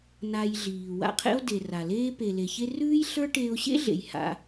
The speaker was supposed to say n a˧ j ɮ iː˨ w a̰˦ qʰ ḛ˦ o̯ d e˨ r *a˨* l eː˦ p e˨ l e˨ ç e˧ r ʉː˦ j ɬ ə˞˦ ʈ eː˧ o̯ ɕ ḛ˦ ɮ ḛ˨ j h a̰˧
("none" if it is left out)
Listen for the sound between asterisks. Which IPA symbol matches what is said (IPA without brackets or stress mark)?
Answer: a˨